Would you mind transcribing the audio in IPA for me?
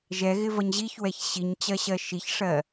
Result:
ʒɛɣɪvʌɲ ʑiçwɛç ɕiɲt͡ɕɜɕɜ ʃiçʂɜ

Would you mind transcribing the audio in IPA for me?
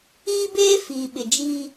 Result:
iː˦beː˦ fiː˨ɓɪ˨d͡ʒiː˦

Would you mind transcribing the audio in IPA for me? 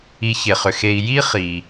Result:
i˨çe˩χʏ˩xe˨i̯ ji˦ χi˩

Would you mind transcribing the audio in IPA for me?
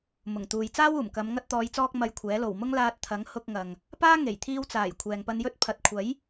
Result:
mʊ˨˩ŋt̪uː˨j t͡saː˥wuː˨˩mkɐ˨˧m ŋɐ˧t̚t̪ɔː˨˧jt͡sɔː˧k̚ mɐ˧jkʷʰɛː˨˥ lo˨˩wmʊ˥ŋ laː˧t̚t̪ʰɐ˨˥ŋ hʊ˧k̚ŋɐ˨ŋ | paː˥ŋe˨˩jt̪ʰiː˧wt͡saː˨˩j kʷʰɛː˨ŋpɐ˧njɵ˥t̚ pʰɐ˨t̚kʷʰɐ˨˥j

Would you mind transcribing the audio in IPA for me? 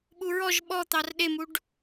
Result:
ɓuɹɔʒ ɓɔ t̪ɑrɗemuɖ

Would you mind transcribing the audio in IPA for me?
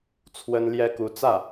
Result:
t͡sʰwə˥n ljɛ˥ku˧˥ t͡sä˥˩

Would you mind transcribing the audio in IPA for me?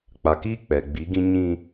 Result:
k͡pa˨kiː˦ k͡pɛ˨ ɡ͡bi˨˦ɡĩ˦ ɲĩ˦

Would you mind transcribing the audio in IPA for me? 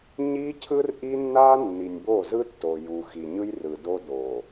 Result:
ɲi˦cʰɯ˦r ʔi˦nːa˦ nːi˨nʲbo˦˨ zɯ˦tːo˨ ju˨ xi˨ɲɯ˦jrɯ˨do˦ do˨

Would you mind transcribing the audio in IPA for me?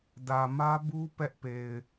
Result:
dä˨mä˦bu˦ pɛ˦ʔpe˨ɪ̯

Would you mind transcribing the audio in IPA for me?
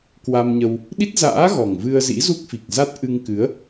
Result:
kwa˧mɲə˧w | ɗi˦˥t̚za̰ː˧˥ ɣɔ˨˩ŋ vɨ˧ə̯zḭ˧˥zu˦˥k̚fi˨˩k̚ za˦˥t̚ʔɨ˧ŋ kɨ˨˦ə̯

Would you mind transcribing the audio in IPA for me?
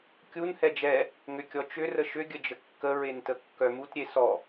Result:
kʲun hɛd͡ʒɛ | ŋʏkʲɔt͡ʃʏ rəʃʏ ɡʲəd͡ʒəkːə ɹentəkːœmut ɾʲesɔ

